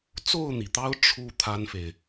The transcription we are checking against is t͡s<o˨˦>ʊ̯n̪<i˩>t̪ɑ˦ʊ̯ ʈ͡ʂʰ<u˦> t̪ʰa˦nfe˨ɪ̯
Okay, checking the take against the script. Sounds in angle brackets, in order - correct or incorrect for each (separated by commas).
incorrect, correct, correct